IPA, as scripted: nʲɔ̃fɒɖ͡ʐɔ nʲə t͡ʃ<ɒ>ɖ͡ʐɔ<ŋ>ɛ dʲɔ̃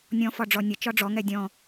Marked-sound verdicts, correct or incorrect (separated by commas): correct, correct